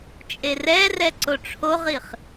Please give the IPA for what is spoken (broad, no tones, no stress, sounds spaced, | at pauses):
t͡ʃʼ e r ɛ r ɛ ǀ o ʈ͡ʂʰ o ʁ i χ